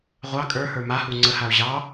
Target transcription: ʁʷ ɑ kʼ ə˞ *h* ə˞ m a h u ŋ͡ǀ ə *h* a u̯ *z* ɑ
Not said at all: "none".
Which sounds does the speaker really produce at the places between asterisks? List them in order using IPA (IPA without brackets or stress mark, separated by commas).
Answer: h, h, ʑ